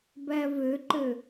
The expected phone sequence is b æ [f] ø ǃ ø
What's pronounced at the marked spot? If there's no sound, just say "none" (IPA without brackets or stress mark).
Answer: v